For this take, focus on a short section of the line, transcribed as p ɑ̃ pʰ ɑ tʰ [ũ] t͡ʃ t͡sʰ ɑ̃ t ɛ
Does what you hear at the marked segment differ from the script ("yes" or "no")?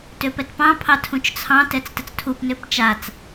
no